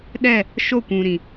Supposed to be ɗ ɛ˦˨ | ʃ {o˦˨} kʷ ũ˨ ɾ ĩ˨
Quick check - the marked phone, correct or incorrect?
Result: correct